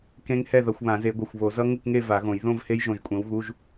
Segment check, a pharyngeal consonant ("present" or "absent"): absent